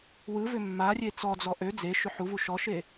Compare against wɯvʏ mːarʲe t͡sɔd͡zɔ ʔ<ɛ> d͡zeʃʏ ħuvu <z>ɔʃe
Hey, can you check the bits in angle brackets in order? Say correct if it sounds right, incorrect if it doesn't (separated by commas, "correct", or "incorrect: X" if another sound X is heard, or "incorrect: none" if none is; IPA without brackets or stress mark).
incorrect: ø, incorrect: ʃ